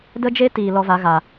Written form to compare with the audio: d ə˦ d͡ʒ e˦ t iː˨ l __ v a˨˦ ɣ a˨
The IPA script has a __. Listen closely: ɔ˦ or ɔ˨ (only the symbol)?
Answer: ɔ˦